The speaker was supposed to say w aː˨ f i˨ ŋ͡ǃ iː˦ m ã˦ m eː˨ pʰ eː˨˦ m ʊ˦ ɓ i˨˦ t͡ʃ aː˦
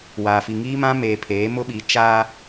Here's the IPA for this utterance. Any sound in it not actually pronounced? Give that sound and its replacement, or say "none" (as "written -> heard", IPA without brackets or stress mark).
ŋ͡ǃ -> ŋ